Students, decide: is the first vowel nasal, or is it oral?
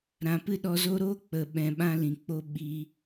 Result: nasal